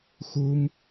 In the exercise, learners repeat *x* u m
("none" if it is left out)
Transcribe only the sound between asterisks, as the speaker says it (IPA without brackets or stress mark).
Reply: x